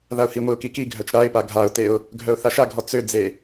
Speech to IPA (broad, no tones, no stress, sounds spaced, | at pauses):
ð a ʊ̯ h i ŋʷ i ʊ̯ k i k i ɡʱ œ t͡ʃ ɾ a ɪ̯ p a ɡʱ a ʊ̯ t e ʊ̯ | ɡʱ œ ʊ̯ θ a ʃ a ɡʱ ɔ t͡s ø d͡z e